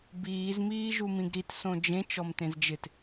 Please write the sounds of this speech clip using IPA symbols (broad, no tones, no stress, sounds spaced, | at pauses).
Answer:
b iː z m iː ʒ u m ĩ ɡ ɾ i t s õ d͡ʒ ẽ t͡ʃ ɔ m t ẽ z d͡ʒ ɪ t